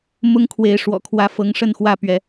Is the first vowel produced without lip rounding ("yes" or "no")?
no